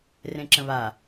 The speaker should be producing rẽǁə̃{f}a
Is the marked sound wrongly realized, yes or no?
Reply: yes